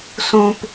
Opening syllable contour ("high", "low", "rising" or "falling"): low